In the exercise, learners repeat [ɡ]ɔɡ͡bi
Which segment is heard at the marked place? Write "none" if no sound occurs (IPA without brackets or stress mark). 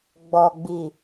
ɡ͡b